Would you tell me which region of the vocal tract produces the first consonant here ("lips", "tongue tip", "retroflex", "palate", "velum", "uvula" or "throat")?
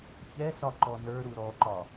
palate